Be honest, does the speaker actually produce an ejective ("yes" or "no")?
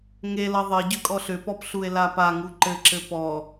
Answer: yes